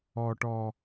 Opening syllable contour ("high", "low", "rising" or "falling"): low